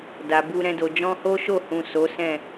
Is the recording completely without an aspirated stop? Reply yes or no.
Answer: yes